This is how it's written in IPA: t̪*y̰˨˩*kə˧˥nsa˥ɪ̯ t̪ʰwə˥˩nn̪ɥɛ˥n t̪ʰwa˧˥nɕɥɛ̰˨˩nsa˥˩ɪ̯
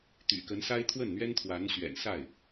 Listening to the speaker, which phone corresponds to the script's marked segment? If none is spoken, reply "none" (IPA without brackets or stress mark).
y̰˨˩